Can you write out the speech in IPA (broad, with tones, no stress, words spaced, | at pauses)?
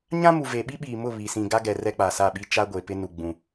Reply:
ɲã˦mu˨ ve˨ ɓi˦ɓiː˨mʊ˦˨ βi˨ sĩ˨ɡa˦ɡɛ˨ rɛ˦k͡pa˨sa˦˨ɓi˦ t͡ʃa˦ɡʷe˨pɪ˦ nu˨ɡ͡bũ˨